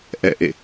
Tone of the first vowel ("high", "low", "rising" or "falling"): falling